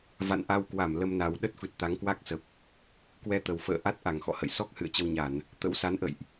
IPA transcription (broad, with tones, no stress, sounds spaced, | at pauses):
v a̰˧˨ n ʔ a˧ w k w a˧˩ m l ə˧ m n a˨˩ w ɗ ə˦˥ t̚ f ɨ˨˩ t̚ t̪ a˨˦ ŋ k w a˦˥ k̚ s ə˨˩ p̚ | k w ɛ˧ t̪ ə˨˩ w f ə̰ː˧˨ ʔ a˦˥ t̚ ʔ a˧˩ ŋ x ɔ̰˧˨ h ə̰˧˨ j s ɔ˦˥ k̚ h ɨ̰˧˨ ə̯ t͡ɕ ə˧ w ɲ a˧˩˨ n | t̪ ə̰˧˥ w s a˨˦ n ʔ ə̰˧˨ j ʔ